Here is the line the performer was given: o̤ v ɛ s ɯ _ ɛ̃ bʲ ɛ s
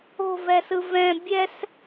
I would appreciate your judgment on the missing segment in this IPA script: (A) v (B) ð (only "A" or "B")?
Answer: A